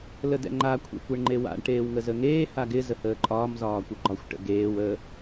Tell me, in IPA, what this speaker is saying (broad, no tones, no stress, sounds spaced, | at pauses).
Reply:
l ə d ɛ̰ ŋ͡ǃ a kʷʰ ḛ kʷ e ɳ ŋ͡ǃ e w a̰ ɳ ʈ eː w ŋ ə z ə ŋ eː h a ɡ ɪ z ə h əː ǃʼ ɒː m z ɒː kʷ ɪ ɡ͡ǃ ɒ xʷ ʈ ə̰ ɡ eː w ə